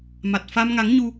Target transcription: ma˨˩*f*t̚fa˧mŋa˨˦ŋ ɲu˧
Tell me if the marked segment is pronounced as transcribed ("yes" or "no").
no